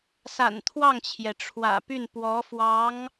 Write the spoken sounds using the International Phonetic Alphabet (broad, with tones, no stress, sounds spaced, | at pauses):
s a̰˨˩ n t̪ʰ w ɑ˥˩ ŋ t͡ɕʰ j ɛ˩ ʈ͡ʂʰ w ä̰˨˩ p y˥˩ n p w ɔ˧˥ f w ɑ˧˥ ŋ